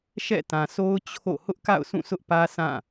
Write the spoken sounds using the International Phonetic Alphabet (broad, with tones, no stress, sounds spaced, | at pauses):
ʃ ɛ̰˦˨ t ã˨ sʰ o˦ ʊ̯ t͡ɕʰ o̰˦˨ h ʊ˦ ʔ k a̰˦˨ ʊ̯ sʰ ũ˦˨ s ʊ˦ ʔ p ä˦ sʰ ã˦˨